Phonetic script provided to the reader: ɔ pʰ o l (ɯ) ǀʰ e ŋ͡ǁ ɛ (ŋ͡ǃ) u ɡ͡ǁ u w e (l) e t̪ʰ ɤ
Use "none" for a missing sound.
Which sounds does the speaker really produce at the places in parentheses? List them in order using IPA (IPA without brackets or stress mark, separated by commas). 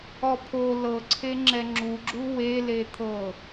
ɤ, ŋ͡ǁ, l